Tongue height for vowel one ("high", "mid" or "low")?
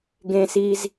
mid